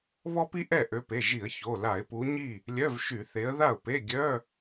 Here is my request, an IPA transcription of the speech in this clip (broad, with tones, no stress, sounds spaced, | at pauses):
β ɔ˥ p i˥ ʔ ɛ˥˩ ʔ ø˨˦ p e˩˧˩ ʒ i˧˩˧ ə̯ ç o˩˧˩ l a˧˩˧ ɪ̯ p u˨˦ ɲ i˥˩ | lʲ œ˧˥˧ v ʃ y˧˩˧ θ e˨˦ ə̯ ð a˥˩ ʊ̯ p e˧˥˧ ɡʲ œ˧˥˧